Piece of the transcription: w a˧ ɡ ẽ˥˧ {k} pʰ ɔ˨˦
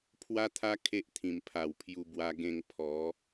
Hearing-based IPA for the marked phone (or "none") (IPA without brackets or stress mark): ŋ